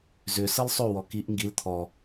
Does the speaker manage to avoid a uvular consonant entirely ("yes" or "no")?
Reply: yes